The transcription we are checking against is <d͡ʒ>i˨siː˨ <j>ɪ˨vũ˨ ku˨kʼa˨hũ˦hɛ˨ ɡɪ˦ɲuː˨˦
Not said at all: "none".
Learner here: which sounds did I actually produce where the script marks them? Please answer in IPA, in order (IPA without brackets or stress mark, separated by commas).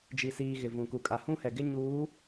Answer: d͡ʒ, ɣ